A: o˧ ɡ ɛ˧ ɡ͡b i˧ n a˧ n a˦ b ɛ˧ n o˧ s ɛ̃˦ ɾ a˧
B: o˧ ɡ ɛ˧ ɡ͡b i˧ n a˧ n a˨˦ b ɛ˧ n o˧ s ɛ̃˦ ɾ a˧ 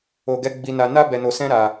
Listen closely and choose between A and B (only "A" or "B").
A